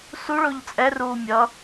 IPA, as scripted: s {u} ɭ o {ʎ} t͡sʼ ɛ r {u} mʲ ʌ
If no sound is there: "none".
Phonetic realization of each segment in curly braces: u, ʎ, uː

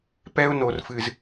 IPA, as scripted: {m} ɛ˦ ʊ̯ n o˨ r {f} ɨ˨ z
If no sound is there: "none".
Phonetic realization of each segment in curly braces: p, f

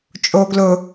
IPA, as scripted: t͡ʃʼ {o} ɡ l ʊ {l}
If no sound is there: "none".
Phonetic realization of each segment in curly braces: o, none

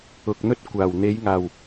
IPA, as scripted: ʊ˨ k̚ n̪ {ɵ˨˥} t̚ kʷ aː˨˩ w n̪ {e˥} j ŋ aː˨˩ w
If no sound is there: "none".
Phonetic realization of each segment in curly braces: ɵ˥, e˨˧

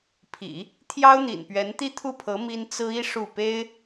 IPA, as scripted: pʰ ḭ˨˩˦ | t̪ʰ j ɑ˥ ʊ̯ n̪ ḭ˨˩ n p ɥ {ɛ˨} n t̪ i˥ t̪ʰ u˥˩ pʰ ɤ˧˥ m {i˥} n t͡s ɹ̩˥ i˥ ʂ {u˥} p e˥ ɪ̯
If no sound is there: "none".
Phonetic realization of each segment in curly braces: ɛ˧˥, i˥, u˥˩

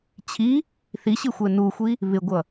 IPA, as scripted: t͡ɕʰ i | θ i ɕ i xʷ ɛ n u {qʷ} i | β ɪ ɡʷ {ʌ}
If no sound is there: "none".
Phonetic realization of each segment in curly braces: xʷ, ʌ

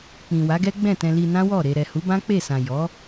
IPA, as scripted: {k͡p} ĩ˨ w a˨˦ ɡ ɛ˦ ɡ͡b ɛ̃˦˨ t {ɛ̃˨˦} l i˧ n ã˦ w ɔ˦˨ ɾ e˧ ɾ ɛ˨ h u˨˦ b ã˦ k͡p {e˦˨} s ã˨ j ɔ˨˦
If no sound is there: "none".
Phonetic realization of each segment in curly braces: k͡p, ɛ̃˧, e˦˨

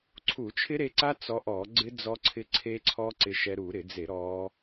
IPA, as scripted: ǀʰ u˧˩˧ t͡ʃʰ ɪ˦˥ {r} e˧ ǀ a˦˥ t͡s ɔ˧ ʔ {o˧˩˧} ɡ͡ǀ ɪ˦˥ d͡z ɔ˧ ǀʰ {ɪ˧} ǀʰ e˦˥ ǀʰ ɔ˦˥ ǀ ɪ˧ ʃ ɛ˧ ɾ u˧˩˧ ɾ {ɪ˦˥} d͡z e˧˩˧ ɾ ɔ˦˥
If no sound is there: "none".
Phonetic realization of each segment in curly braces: ɾ, ɔ˧˩˧, ɪ˧, ɪ˧˩˧

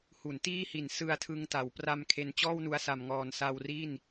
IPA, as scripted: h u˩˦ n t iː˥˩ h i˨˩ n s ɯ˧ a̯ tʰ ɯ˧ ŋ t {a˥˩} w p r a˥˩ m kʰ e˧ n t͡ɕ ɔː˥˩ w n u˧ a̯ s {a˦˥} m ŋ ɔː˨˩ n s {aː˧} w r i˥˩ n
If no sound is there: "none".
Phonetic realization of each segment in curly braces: a˩˦, a˨˩, a˧

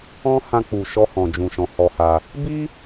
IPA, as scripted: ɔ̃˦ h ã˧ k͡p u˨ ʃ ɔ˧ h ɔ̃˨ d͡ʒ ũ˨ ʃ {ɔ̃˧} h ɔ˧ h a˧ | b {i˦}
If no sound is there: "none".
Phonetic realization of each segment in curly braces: ɔ̃˨, i˦

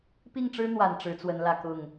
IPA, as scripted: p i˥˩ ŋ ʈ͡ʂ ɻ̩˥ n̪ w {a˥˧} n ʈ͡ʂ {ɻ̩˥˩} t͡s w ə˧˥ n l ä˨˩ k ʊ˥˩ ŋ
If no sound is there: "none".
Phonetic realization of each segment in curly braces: a˨˩, ɻ̩˧˥

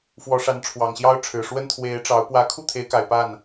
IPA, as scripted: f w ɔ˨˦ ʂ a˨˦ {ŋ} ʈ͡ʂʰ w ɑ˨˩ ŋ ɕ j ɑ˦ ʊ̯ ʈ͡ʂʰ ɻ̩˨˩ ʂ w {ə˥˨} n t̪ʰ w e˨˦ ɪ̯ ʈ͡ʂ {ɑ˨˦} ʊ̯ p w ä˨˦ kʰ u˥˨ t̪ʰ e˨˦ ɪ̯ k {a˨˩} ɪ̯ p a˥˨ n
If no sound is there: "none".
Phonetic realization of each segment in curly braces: n, ə˦, ɑ˨˦, a˨˩

